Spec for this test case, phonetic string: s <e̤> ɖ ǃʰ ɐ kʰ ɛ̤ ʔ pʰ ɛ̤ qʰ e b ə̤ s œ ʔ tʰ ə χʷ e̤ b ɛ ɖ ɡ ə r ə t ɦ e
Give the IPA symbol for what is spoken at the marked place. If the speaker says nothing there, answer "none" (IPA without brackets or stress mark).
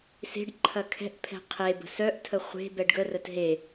e̤